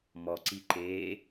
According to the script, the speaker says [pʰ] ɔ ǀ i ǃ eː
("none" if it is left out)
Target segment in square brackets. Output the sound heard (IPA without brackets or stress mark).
m